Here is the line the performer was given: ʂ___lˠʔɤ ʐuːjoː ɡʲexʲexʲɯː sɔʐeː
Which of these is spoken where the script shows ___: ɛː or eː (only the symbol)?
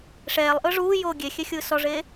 ɛː